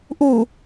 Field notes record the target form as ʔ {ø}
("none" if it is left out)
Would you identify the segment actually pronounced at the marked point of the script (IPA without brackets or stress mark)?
u